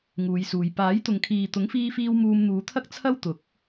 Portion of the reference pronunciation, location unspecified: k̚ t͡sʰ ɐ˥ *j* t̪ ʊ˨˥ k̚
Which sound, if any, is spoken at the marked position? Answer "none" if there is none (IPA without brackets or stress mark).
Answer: w